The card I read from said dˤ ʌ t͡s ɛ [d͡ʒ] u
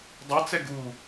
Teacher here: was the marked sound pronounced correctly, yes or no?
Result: no